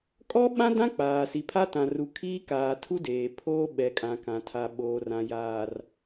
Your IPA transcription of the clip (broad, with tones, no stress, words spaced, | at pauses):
kʼɔ˦ɓã˦dã˦ k͡paː˨ si˨pʰa˦ tã˨ru˨ kʰiː˦kaː˨ tʰu˦deː˨ pʰoː˦ɓɛ˨kʼã˨ kã˨tʰa˨ɓoː˨rã˨ jaː˨r